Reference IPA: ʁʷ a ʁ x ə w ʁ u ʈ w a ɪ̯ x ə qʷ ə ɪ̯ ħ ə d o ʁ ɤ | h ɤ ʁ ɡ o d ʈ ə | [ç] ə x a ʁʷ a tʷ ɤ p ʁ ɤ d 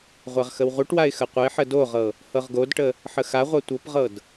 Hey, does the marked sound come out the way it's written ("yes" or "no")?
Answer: no